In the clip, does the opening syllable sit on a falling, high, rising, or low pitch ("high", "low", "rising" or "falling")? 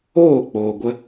falling